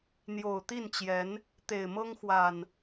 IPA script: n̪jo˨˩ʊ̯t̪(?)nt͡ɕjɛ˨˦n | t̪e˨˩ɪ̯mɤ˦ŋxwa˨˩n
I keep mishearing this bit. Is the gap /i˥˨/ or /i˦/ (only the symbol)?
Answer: i˥˨